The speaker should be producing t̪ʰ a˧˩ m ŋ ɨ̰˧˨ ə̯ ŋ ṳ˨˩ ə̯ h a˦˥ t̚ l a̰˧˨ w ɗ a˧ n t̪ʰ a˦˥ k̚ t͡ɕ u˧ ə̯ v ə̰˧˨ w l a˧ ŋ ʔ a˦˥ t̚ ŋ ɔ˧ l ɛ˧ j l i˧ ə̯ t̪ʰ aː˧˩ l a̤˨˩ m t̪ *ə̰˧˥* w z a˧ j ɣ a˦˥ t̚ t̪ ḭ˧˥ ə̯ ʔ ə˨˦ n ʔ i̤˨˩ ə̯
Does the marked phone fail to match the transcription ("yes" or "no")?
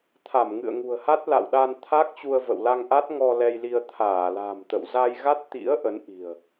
yes